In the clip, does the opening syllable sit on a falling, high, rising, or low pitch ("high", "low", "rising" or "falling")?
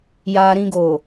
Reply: low